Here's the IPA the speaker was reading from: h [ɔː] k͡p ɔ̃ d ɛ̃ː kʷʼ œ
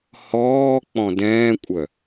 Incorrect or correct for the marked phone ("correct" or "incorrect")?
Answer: correct